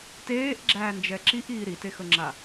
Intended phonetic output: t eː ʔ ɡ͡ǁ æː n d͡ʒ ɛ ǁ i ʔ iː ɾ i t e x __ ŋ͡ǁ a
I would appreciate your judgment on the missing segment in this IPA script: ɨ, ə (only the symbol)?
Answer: ə